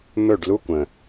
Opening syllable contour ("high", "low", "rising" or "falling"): falling